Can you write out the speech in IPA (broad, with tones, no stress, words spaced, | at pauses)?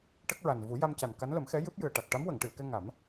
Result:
ʈə˦˥k̚ɹa˨˩n vu˨˩˦ja˧mca˨˩n ka˧˥nlə˨˩˦mxɛ˧˥ jɨ˦˥p̚jɨ˨˩ə̯ʈa˨˩k̚ ʈa˧˥mwə˨˩˨ŋʈɨ˨˩˨ə̯kɛ˧ ŋa˨˩˦m